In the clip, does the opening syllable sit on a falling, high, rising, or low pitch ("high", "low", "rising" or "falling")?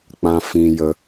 high